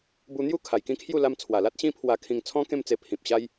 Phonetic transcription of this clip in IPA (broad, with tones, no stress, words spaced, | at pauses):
bu˧n̪ju˥˧ kʰa˨˩jkĩ˥˧kʰju˥˧ la˧mt͡sʰwa˨˩la˦t̚ ɕĩ˧pʰwa˨˩kʰĩ˨˩ŋt͡sʰɔ̃˧ kẽ˥˧mt͡se˧pʰĩ˨p̚ ɕa˦j